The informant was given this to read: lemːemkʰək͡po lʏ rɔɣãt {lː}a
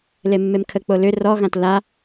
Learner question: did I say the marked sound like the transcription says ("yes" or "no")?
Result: no